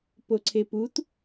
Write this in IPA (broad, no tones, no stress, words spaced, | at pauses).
poǀʰeput